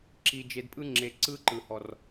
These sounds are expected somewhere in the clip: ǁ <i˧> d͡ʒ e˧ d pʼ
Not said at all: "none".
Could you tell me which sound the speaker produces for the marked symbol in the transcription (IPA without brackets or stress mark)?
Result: i˧